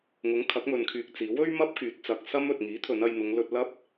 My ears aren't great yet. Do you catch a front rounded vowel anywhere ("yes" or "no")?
yes